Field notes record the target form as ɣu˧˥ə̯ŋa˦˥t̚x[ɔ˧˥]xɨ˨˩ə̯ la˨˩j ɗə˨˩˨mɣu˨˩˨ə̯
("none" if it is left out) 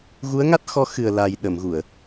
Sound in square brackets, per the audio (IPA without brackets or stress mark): ɔ˧˥